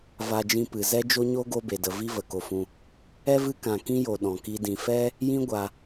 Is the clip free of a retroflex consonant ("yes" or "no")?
yes